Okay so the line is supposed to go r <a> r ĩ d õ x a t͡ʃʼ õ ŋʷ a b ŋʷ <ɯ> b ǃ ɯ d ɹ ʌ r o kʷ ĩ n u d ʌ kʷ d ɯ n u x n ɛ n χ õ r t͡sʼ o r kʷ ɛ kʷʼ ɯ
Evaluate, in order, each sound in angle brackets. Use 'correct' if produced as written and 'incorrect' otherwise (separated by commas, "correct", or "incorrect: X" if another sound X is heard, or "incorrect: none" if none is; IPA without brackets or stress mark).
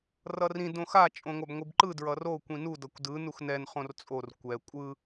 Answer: incorrect: ʌ, correct